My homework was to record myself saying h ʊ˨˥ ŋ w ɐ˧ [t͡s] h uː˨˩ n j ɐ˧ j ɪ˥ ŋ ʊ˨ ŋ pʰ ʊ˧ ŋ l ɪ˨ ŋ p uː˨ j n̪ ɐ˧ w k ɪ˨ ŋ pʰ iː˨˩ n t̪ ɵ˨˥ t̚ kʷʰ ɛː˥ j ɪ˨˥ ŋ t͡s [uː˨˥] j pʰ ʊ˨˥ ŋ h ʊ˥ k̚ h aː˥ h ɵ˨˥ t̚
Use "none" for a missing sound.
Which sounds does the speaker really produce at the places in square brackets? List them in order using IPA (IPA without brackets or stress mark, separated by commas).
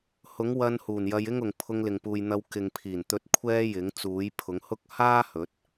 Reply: n, uː˨˥